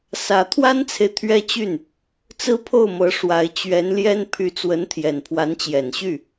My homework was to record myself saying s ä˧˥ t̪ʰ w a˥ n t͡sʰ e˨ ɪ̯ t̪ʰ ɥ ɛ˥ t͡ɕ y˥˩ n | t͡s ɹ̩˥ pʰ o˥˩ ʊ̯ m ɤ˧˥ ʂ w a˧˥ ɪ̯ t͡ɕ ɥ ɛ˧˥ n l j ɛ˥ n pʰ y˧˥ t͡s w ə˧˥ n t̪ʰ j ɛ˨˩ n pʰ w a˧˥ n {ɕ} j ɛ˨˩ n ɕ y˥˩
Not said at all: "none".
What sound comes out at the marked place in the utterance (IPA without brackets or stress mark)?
t͡ɕ